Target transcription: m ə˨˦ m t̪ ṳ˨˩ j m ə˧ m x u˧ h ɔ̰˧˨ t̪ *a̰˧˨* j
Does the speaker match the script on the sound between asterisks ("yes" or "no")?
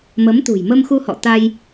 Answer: no